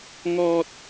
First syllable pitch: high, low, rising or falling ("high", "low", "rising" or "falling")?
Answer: high